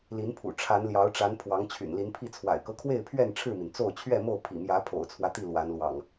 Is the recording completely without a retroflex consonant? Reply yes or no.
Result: no